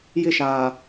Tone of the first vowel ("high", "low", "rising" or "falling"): falling